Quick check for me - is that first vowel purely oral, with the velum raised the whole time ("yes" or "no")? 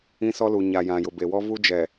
no